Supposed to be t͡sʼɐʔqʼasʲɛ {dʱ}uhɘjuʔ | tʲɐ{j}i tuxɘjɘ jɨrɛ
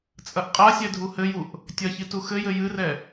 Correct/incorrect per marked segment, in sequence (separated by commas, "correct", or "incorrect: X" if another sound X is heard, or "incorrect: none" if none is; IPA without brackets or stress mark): correct, incorrect: ç